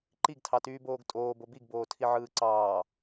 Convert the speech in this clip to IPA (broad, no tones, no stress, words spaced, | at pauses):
ǃiɡtʰɑtyːboːɡ tʼoːbo biɡboːtʰiʕɯː ǀɑː